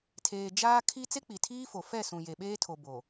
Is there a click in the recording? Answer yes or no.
no